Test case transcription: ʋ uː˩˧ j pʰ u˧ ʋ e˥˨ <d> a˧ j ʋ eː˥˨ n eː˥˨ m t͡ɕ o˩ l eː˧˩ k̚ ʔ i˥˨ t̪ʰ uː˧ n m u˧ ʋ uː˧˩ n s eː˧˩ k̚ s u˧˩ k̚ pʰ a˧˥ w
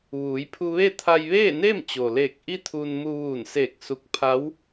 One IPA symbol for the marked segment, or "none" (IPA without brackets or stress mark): t̪ʰ